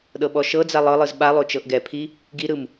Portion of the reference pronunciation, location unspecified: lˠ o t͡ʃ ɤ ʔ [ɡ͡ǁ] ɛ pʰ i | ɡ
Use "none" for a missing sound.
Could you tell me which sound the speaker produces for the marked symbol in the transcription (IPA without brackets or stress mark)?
ɡ